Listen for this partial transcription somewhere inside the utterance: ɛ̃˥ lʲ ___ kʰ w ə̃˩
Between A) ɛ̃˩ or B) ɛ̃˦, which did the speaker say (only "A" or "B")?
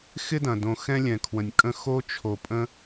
A